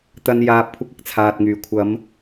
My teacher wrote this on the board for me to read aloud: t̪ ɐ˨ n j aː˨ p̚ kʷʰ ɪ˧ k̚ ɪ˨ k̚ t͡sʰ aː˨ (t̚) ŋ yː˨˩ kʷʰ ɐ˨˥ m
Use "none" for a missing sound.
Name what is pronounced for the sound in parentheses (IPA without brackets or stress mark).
t̚